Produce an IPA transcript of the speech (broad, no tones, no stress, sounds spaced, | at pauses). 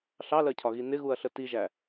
ɬ ɑ l ɜ cʰ ɒ ɣ i n ɪ ɣ u ɐ̯ ɬ ə t i ʒ æ